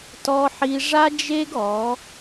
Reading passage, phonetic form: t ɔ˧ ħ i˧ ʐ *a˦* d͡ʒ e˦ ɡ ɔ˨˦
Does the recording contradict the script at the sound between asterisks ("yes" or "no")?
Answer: no